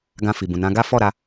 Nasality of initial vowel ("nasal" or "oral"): nasal